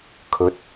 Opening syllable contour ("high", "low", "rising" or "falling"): rising